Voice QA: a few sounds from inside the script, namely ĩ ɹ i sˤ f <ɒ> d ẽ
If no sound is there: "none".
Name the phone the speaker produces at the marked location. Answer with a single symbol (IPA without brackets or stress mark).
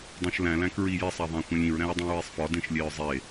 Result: ɒ